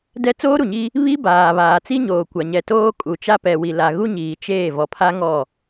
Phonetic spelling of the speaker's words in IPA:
d ɛ˦ t͡s oː˦ ɾ u˨ ɲ i˦ | β i˦ b aː˨ β aː˨ t͡s i˦ ɲ oː˨ kʷ a˨ ɲ ɛ˨ t oː˦ kʼ u˨ t͡ʃ a˦ p ɛ˨ w i˨ l a˨ ɣ u˦ ɲ iː˨ t͡ʃ eː˦˨ v ɔ˨ pʰ a˦ ŋ ɔ˦˨

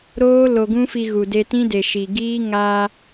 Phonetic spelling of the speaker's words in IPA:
ɾ oː˦ l o˧ ɡ ũ˦ f i˧ ɣ u˨ d e˧ t ĩ˦ d e˨ ʃ i˨ ɡ iː˦ ŋ a˧

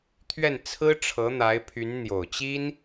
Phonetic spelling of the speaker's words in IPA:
t̪ʰ ɥ ɛ˥˩ n t͡sʰ ɹ̩˥ ʈ͡ʂʰ ɤ˧˥ n̪ a˧˥ ɪ̯ pʰ y˧˥ n n̪ j o˨˩ ʊ̯ t͡ɕ i˥ n

